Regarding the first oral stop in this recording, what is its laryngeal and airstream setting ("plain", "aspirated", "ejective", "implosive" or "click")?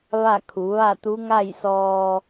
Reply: aspirated